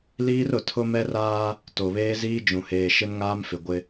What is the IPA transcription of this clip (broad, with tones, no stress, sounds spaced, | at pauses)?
l iː˦ r ʊ˨ tʰ ʊ˦ m ɛ˦ r aː˦ | t o˨ β eː˦ z iː˦ d͡ʒ ũ˨ h eː˨ ʃ ɪ˦ n ŋ aː˦ m f ɪ˨ ɡʷ ɪ˦